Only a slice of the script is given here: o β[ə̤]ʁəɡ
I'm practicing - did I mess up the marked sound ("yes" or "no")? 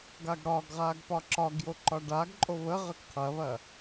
yes